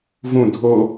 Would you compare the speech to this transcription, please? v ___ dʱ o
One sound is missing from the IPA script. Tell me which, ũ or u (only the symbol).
ũ